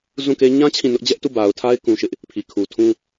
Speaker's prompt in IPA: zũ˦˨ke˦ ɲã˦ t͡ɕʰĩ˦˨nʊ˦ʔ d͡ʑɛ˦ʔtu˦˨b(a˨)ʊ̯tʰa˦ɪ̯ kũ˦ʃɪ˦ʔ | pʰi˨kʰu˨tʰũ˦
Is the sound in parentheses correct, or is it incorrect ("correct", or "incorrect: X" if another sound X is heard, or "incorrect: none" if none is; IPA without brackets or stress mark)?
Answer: correct